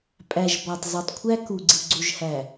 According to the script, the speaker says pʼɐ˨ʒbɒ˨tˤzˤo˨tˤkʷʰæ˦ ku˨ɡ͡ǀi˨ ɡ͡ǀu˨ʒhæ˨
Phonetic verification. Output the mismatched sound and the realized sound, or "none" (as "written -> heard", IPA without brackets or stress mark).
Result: ɐ˨ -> æ˨